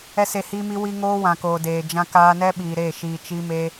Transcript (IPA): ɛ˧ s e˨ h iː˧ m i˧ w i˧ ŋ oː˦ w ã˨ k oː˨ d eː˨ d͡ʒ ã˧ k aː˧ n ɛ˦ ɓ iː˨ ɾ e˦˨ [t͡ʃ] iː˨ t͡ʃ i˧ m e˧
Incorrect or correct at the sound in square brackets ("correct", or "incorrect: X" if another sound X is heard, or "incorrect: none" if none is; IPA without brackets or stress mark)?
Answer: incorrect: ʃ